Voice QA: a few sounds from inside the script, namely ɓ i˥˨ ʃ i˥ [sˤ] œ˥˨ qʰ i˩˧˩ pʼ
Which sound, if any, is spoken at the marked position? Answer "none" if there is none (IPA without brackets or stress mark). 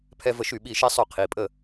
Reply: sˤ